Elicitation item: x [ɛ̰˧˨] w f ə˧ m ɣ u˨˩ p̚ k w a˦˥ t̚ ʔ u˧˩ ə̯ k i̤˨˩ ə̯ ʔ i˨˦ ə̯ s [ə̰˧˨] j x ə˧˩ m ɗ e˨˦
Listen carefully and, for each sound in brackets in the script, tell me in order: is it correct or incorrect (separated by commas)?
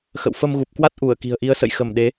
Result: incorrect, correct